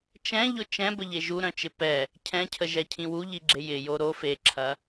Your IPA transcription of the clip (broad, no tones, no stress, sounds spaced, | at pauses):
t͡ʃ ɛ̃ ʎ ʊ t͡ʃ ɛ̃ b ə ʎ e ʒ u ɾ œ̃ t͡ʃ ɪ p ɛ | cʰ ɛ̃ cʰ ə ʒ ɛ cʰ ĩ w u ʎ i ɡ͡ǁ e j ɪ j o ɾ o f e ǁʰ ɐ